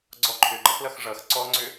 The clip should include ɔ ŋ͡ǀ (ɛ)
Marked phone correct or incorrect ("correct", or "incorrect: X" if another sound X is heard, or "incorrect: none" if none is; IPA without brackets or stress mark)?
incorrect: ʏ